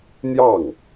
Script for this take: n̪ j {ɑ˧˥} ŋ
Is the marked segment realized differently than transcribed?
yes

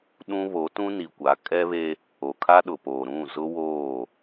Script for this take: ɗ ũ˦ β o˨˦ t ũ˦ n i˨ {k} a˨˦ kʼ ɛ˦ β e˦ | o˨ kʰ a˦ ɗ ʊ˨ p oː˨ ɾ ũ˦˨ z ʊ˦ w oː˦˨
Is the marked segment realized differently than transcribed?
yes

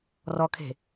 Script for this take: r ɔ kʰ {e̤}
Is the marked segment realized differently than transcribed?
no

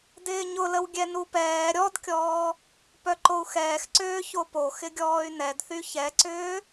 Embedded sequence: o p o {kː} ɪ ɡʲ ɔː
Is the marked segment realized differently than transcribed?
yes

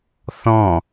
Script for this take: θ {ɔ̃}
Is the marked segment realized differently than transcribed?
no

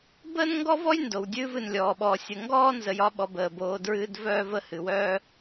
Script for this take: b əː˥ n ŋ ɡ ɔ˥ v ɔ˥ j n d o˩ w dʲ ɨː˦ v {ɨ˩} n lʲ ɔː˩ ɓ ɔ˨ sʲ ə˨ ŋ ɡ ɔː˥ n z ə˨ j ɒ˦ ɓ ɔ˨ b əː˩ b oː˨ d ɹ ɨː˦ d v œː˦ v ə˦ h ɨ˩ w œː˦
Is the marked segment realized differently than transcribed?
yes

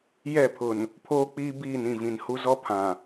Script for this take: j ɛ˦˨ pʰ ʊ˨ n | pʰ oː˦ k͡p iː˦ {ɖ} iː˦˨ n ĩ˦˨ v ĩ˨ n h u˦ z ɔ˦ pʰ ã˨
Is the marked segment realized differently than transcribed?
yes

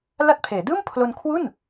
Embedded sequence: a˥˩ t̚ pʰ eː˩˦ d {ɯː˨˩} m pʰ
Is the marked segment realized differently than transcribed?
yes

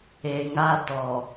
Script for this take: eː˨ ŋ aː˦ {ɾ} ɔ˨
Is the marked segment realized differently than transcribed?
yes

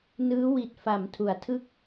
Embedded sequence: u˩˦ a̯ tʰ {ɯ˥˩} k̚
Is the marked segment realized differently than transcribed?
no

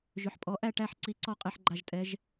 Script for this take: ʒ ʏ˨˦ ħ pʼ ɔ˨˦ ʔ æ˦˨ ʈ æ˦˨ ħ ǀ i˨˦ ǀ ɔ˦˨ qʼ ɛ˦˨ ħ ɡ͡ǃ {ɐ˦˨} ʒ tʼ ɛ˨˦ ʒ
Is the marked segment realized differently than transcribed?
yes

